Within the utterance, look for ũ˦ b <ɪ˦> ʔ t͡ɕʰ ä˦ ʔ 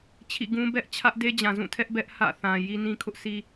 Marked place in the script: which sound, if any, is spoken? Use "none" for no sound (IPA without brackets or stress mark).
ɛ˦